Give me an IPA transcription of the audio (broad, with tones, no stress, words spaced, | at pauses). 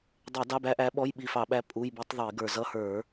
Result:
dˤɛ˧˩˧ dɑ˧˥˧bæ˧˥ʔæ˧˥ɓɔ˧˥˧j ɓi˧˩fɑ˧˩˧ɓæ˧˥ pʼu˧˥˧jbi˧˥tˤ ðˤi˧˩˧ɡə˞˧˩ zʌ˧˥˧ hə˞˧˩˧